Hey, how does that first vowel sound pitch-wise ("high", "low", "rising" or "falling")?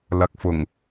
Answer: low